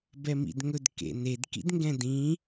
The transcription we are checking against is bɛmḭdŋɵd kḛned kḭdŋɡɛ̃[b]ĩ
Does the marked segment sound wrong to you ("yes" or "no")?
yes